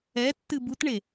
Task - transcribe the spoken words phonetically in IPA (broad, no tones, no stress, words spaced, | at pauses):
ɛtːɨ butɳe